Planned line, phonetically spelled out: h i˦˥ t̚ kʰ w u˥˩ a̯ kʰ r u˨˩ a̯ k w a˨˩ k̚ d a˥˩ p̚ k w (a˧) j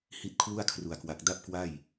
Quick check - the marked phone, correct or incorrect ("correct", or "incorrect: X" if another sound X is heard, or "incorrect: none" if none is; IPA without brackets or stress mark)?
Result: incorrect: a˥˩